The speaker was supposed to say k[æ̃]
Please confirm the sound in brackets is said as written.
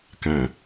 yes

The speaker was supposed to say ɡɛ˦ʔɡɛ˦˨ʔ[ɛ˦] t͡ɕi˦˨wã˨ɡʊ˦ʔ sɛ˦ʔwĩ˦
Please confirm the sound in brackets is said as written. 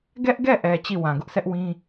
no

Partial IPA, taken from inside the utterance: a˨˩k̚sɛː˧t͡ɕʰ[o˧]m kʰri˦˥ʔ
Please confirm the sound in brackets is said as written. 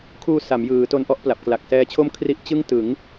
no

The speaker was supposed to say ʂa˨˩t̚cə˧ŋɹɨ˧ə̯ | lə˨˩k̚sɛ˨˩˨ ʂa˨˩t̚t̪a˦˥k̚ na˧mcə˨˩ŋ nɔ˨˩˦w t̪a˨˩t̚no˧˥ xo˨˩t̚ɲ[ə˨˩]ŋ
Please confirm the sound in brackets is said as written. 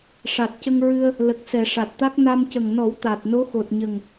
yes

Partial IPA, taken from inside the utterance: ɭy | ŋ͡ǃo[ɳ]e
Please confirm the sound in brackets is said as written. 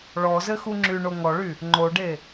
no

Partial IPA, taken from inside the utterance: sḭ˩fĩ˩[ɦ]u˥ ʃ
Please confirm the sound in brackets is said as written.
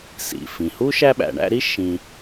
no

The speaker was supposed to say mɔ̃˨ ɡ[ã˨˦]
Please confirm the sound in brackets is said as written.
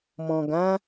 yes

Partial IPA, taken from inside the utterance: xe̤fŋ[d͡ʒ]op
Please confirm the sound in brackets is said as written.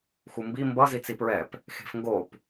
no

